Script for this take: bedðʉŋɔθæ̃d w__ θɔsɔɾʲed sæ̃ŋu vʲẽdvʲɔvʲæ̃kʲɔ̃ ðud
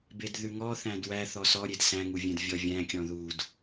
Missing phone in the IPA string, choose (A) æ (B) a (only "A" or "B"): A